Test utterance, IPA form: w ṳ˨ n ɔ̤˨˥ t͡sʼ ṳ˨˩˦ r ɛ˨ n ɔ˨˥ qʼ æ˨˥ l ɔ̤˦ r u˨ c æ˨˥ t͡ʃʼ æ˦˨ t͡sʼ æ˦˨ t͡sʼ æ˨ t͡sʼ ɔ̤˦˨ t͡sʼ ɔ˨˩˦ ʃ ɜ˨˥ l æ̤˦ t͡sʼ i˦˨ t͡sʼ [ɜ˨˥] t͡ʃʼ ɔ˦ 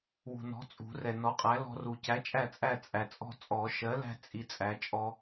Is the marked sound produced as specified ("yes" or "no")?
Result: no